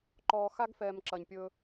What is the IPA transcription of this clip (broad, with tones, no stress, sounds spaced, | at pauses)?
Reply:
ǃ ɔː˨ x a˦ ɡ f ɛː˨ m ǁ ɐ˨ ɲ pʲ ɵ˦